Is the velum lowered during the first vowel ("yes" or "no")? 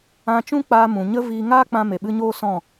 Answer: yes